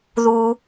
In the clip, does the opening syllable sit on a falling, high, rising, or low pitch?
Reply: low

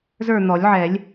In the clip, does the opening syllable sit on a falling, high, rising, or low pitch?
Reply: falling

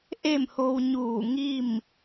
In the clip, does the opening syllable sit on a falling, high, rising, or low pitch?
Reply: falling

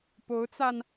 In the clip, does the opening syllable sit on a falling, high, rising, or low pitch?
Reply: rising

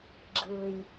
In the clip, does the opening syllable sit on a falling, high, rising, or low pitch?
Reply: low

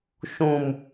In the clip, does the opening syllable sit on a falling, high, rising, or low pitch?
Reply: low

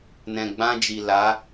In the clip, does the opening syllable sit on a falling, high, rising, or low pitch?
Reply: low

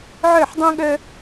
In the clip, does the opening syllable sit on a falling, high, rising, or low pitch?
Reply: falling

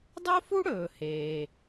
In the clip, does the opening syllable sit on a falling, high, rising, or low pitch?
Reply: high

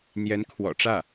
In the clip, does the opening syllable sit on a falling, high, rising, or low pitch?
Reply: rising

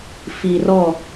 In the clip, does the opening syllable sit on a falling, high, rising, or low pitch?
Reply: low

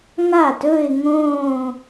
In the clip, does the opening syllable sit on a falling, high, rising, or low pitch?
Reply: falling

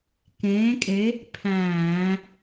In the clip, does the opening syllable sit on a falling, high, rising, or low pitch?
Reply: rising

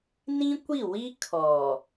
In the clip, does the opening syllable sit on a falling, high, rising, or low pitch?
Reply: high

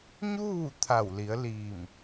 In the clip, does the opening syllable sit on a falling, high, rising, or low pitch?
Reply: falling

